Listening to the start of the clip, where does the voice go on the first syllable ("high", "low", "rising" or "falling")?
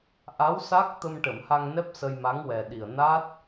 rising